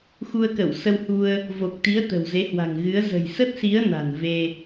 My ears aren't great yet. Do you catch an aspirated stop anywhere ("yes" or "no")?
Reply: no